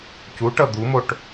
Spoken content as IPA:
c u ʈ ʌ d̪ u m o ʈ

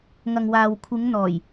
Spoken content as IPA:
ŋ ɐ˨ ŋ w aː˨ w kʷʰ ɪ˨˧ ŋ n̪ ɔː˨˩ j

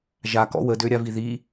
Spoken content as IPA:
ʒ a k ɔ̰ w ə d ø ɾʲ a v i ð i

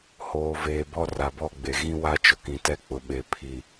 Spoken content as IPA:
h oː˨ v eː˨ b ɔ˦ r a˨ b ɔ˦˨ ɡ͡b e˨ ɣ ĩ˦ w a˦ t͡ʃ ʊ˨ k ĩ˨ t ɛ˦ k͡p ʊ˨ ɓ e˨ pʰ i˨

